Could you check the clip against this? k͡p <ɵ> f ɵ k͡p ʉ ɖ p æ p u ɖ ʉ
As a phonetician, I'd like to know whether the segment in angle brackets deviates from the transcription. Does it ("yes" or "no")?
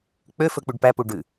yes